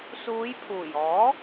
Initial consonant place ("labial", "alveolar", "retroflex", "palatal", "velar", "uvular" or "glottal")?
alveolar